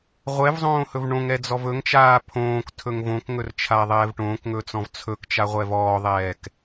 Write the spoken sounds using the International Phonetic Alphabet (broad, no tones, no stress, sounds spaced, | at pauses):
ʁʷ ɛ v zˤ õː h ɵ v ɳ õ ŋ ɛ d͡z ɔ v ɵ ŋ t͡ʃ aː pʰ õː k tʰ ɵ ŋ v õ k ŋ ɵ r t͡ʃʰ aː ðˤ ɛː v ʈ õː k ŋ ɵː t͡s ɔ̃ v t͡sʰ ɵ k t͡ʃ a ʁʷ ɛ v ɔː ðˤ ɛː k